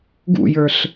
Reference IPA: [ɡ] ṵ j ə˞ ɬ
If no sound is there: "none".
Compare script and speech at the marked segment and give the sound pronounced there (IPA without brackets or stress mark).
ɡ